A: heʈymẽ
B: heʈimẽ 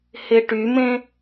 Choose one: A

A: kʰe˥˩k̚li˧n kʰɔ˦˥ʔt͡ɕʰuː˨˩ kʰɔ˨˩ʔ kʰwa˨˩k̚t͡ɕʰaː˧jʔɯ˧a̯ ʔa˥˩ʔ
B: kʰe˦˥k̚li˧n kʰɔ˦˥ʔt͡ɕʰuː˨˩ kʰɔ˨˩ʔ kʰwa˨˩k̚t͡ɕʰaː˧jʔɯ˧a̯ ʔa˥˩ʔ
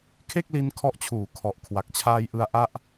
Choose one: A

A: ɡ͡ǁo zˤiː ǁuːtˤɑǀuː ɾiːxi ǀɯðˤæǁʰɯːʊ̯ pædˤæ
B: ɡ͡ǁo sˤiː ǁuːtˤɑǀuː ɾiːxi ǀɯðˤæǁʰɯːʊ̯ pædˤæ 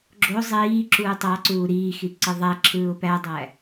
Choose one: A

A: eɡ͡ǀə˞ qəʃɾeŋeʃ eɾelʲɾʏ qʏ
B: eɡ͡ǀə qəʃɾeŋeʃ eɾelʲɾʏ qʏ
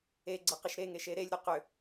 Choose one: B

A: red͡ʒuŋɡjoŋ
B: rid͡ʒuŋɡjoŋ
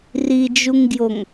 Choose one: B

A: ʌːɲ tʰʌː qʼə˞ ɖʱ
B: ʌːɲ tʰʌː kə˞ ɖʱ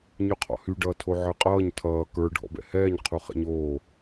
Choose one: B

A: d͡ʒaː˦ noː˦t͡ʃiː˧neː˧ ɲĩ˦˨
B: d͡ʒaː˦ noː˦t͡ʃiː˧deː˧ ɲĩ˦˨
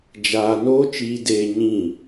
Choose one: B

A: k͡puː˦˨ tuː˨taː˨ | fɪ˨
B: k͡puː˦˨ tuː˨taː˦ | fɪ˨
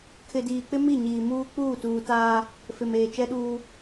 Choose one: B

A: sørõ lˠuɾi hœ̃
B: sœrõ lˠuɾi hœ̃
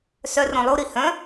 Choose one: B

